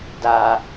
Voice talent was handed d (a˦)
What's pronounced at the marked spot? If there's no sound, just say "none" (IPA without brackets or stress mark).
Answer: a˨